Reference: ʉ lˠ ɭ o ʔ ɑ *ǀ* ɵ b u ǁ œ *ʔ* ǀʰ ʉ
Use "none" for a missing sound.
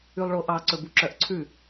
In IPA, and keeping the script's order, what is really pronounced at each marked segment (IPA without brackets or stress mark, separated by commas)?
ǀ, ʔ